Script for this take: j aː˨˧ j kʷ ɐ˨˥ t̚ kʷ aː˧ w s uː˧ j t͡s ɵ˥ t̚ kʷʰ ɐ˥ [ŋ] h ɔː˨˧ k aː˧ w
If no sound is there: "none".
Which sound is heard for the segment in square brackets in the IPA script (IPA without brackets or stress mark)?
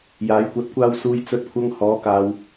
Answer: ŋ